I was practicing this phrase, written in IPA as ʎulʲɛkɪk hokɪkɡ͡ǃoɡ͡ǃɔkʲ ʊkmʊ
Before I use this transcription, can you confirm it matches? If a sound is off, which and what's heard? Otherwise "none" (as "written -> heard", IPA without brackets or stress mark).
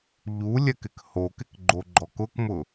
kʲ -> k